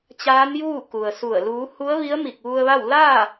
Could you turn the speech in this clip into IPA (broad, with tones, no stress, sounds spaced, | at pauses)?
t͡ɕ aː˧˥ n j uː˥˨ k u˩ ə̯ s u˧˩ ə̯ l uː˩˧ h u˧˥ ə̯ ʋ i˧˥ ə̯ m i˧˩ k̚ ʋ u˧ ə̯ ʋ a˥˨ w l aː˥˨